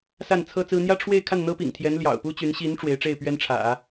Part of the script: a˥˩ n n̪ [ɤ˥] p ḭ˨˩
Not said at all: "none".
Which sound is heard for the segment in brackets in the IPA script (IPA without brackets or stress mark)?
ɤ˥